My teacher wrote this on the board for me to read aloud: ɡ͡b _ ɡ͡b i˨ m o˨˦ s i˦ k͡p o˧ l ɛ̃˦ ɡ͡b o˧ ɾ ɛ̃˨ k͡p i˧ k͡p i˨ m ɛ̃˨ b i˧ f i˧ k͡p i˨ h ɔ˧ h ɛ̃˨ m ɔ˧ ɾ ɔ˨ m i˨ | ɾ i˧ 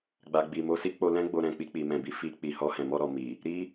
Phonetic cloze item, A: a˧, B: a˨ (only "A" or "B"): B